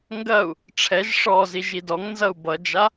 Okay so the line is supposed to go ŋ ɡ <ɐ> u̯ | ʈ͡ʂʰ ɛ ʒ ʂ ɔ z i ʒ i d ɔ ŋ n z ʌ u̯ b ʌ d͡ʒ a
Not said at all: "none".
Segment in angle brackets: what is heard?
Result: ɐ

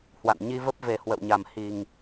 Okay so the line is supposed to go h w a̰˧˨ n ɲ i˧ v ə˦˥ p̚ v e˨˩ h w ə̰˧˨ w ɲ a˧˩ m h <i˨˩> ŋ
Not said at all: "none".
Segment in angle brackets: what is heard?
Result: i˨˩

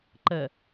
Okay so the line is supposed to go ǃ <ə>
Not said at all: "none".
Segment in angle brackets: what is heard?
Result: ə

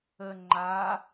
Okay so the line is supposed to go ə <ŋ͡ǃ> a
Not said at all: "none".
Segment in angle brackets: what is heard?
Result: ŋ͡ǃ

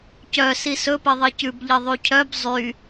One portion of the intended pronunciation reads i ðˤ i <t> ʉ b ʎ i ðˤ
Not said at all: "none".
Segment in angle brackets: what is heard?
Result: c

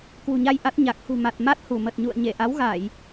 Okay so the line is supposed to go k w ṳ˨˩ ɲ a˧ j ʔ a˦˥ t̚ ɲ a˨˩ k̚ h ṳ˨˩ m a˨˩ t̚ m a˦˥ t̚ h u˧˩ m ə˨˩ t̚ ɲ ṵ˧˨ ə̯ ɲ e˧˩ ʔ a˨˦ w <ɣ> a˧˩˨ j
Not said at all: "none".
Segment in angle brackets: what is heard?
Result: ɣ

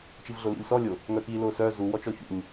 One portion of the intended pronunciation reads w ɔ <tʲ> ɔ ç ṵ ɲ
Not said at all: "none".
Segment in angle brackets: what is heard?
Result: t͡ʃ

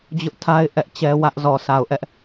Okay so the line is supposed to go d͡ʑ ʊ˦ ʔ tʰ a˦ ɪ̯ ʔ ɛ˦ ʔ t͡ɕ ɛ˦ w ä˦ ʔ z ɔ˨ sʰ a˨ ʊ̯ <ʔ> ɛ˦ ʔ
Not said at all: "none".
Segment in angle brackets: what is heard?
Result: ʔ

